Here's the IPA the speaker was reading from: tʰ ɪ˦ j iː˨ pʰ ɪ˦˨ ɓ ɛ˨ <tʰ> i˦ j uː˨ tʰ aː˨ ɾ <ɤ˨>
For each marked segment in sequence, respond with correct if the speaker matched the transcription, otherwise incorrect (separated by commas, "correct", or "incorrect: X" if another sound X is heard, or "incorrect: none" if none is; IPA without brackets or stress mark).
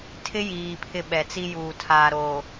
incorrect: t͡s, incorrect: o˨